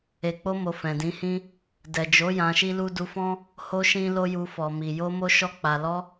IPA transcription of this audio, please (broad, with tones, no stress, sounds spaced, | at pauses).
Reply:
e˨ k͡p o˧ m o˨ f ɛ̃˨ d ĩ˨˦ h ĩ˦ | d ɛ˨ d͡ʒ o˨˦ j ã˧ ʃ i˦ l u˦ d u˧ f ɔ̃˦ | h o˦ ʃ ĩ˦ l o˦ j u˧ f ɔ˨ m i˨ j o˧ m o˦ ʃ ɔ˧ k͡p a˨ l ɔ˧